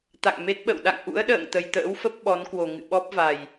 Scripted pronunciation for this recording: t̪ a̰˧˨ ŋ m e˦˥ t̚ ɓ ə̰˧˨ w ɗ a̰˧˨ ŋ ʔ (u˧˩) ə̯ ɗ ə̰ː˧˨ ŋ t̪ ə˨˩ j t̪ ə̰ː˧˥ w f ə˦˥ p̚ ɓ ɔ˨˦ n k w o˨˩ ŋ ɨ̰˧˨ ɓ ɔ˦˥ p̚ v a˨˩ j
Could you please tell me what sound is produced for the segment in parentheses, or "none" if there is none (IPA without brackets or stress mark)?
ṵ˧˥